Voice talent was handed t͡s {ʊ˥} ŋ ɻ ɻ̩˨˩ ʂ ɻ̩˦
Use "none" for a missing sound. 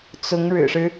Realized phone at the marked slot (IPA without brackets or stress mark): ʊ˧˥